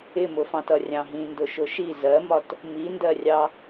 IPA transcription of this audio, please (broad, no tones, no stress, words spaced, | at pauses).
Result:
ɪmʊfɑ̃tʌ rʲɑ̃ɦĩndʊʃʊ ʃi zɜmɒt | mindɜrʲɑ